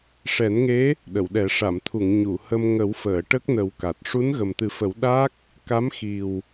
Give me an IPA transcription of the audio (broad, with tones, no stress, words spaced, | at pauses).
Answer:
ʂɛ˨˩˦nŋe˧˥ | ɗə˨˩˨wɗɛ˨˩˦ ʂa˨˩˨mt̪ʰu˨˩˨ŋ ɲu˨˩˨hə˧m ŋə˨˩˦wfəː˨˩˨ ʈə˦˥k̚nə˨˩˦w ka˨˩t̚ ʂu˧˥nɣə˨˩mt̪ɨ˨˩˦fə˨˩˦w ɗa˦˥k̚ | ka˧˥mxi˨˩w